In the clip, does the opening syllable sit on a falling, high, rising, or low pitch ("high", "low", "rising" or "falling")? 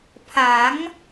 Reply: rising